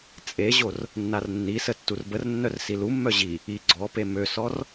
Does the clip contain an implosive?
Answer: no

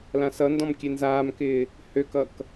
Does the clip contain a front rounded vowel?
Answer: yes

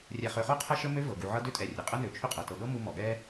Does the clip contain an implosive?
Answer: yes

